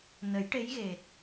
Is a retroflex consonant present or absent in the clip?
present